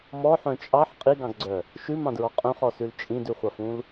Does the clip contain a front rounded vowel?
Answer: yes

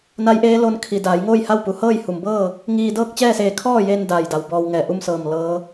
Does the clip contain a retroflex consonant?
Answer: no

